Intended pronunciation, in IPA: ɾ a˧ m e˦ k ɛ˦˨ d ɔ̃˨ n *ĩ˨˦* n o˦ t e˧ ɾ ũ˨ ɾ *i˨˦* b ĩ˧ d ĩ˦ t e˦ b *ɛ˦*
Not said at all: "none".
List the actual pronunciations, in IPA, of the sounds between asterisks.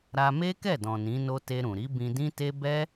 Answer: ĩ˨˦, i˨˦, ɛ˦

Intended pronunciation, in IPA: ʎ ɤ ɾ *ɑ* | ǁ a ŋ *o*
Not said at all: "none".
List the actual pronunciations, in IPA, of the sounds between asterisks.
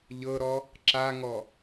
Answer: ɔ, ɔ

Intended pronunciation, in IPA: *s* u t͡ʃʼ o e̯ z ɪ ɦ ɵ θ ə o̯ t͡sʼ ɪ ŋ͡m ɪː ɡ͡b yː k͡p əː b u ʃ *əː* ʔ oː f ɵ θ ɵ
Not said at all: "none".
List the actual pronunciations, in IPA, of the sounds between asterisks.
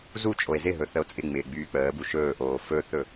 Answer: z, ɵː

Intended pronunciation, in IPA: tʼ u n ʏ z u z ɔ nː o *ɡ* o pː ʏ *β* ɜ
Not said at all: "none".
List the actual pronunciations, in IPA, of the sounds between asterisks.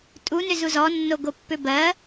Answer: ɡ, b

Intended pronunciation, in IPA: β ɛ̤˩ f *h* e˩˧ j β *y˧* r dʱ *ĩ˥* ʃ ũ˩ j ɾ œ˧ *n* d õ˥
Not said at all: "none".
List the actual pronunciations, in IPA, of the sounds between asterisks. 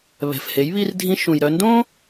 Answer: h, i˧, ĩ˧, n

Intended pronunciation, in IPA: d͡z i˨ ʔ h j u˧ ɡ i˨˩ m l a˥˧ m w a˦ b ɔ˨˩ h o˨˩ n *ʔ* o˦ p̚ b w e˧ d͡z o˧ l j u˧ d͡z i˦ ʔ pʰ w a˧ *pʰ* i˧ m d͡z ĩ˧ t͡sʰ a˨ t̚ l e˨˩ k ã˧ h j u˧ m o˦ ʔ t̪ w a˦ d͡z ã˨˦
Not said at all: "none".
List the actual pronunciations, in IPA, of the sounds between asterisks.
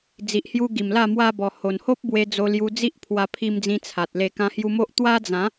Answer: h, pʰ

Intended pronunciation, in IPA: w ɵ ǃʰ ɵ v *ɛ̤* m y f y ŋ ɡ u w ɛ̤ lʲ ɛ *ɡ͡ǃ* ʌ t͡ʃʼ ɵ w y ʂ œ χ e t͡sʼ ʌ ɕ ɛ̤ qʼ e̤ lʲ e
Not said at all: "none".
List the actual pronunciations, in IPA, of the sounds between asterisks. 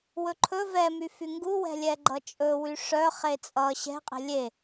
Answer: ɛ, ɡ͡ǃ

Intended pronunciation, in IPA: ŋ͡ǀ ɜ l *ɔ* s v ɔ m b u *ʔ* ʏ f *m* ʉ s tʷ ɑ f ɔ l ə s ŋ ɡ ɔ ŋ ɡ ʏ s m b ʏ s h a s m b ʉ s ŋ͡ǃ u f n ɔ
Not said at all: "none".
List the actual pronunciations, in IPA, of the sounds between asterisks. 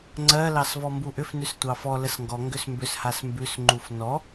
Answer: ɑ, ʔ, n

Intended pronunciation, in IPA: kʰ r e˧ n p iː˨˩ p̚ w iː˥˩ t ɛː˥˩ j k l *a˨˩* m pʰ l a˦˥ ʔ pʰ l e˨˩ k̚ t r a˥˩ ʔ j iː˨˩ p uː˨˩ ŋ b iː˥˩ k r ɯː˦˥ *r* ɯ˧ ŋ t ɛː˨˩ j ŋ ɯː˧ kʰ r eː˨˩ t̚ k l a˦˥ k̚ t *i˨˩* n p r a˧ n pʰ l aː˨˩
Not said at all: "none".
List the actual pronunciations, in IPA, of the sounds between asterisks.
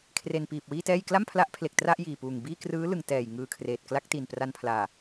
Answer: a˥˩, l, i˨˩

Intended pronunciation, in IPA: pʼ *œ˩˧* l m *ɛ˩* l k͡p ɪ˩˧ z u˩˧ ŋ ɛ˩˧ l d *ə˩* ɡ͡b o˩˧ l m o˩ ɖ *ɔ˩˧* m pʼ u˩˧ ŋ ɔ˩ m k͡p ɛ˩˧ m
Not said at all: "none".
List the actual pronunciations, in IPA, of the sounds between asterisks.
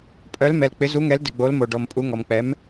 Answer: œ˩˧, ɛ˩, ɪ˩, ɔ˩

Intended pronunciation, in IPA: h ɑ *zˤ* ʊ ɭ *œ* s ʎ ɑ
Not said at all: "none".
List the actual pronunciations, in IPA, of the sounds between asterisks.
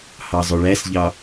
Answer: zˤ, æ

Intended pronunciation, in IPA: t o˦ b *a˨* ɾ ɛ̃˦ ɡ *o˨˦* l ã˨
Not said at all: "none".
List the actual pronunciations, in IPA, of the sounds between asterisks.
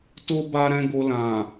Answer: a˦, o˧

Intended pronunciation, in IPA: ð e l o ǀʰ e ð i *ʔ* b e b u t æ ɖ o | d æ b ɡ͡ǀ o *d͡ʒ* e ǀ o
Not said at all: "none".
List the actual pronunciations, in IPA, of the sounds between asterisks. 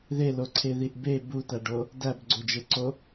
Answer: ʔ, d͡ʒ

